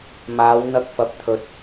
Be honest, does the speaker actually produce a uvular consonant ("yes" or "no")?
no